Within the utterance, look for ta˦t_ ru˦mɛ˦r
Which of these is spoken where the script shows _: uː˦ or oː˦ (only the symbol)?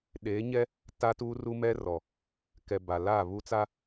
uː˦